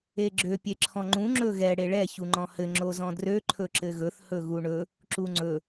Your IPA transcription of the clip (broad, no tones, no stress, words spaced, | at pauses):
eɡ͡ǁø pʲeǁʰɔ̃ŋ͡ǃũ ŋ͡ǁɵɣɛ ɽeɭɛ çuŋ͡ǃɔ̃hɘ ŋ͡ǁozɔ̃drø ǃʰɵǁɘɣɵθ hɵɣuɳɵ | ǁuŋ͡ǀɵ